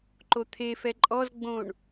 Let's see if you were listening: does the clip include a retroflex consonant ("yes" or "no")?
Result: yes